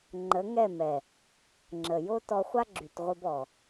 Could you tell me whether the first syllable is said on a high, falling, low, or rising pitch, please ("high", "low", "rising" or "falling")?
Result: rising